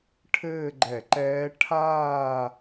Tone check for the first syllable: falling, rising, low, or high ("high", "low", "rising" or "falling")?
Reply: falling